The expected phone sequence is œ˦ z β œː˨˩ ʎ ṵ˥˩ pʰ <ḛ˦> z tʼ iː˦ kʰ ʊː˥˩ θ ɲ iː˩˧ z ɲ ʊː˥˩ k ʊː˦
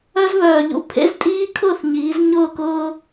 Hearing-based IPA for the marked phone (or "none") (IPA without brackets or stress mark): ḛ˦